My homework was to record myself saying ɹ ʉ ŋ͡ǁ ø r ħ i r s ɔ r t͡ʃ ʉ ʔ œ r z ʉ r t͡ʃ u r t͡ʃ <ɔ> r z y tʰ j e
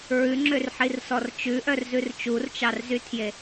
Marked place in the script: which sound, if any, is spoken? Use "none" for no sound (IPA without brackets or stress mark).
ɑ